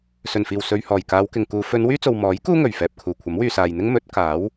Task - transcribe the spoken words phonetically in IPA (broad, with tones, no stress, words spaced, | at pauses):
sɵ˨˩nfiː˨˩w sɵ˨ɥhɔː˨˩jkaː˨˧wkɪ˨ŋ kuː˨˧ fɵ˨˧n wyː˥t͡so˨w mɔː˨˥j kuː˥ŋɵ˨˩ɥfɛː˨p̚kʰuː˨˩ kʷʰɐ˨˥mwyː˨saː˨jn̪ɪ˥ŋ mɵ˨˥t̚kaː˨˥w